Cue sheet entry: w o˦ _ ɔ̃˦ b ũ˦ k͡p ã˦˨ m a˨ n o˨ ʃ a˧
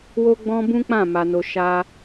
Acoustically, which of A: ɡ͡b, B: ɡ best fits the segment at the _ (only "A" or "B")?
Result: A